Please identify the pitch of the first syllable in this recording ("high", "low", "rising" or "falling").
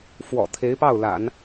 low